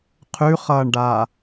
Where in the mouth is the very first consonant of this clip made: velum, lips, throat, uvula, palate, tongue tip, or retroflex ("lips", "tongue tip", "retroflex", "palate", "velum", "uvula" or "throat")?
uvula